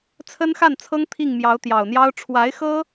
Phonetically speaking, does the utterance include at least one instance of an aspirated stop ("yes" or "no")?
yes